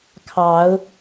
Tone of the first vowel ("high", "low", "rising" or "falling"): rising